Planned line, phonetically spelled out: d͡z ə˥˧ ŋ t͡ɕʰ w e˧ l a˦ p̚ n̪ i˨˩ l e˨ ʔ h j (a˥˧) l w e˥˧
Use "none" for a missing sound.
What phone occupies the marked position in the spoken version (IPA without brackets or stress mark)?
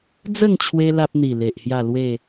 a˥˧